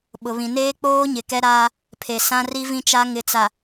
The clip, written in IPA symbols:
ɓʊ˨βĩ˨ neː˦k͡poː˦ɲɪ˨ kɛ˦ɾaː˦ | pʰe˨sã˦ri˦vĩ˦ t͡ʃa˦ ŋɪ˨t͡sa˨

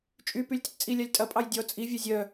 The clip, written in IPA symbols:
t͡ʃʼypylʲ tətt͡sʼilʲalʲ tʼɐpʼɑj dʲɔ t͡sʼivʲœ zʲœ

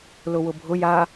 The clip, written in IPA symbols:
lʊwʊbʱʊ ja

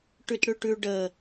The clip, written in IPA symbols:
ʈʉtɽʉʈʉ ɖə

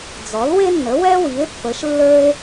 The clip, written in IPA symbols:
d͡zɔ˩˥lwe˥nːə˩˥ wɛ˥wi˩˥e̯pːə˩˥ʃ lːə˞˥e̯

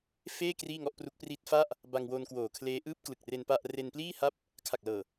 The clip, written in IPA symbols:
feː˥˩ kriː˥˩ŋɔ˥˩ʔpru˦˥k̚ pri˦˥t̚ fa˥˩ʔ | ba˧ŋwo˧n kwoː˨˩kʰleː˦˥ ʔɯː˦˥p̚klɯ˨˩k̚re˧n pa˥˩ʔ re˧npliː˥˩ ha˥˩p̚ | kʰa˨˩k̚lɤː˨˩

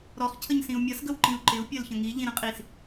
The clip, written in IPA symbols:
ɾɔχ cʰəɲsĩu̯mʲʌs ɡəwǃĩu̯ǃɪu̯ pʲɜlçə̃ŋi ʎĩɾə̃qʼis

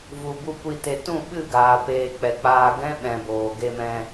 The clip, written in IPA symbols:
vu˨bu˧ kʷi˧te˧ tũ˦˨ɓɨ˦˨ɡaː˨ peː˨ k͡pɛ˨k͡paː˧ ɡɛ̃˦ɓɛ̃˨ boː˨ ɡe˧mɛ̃˧

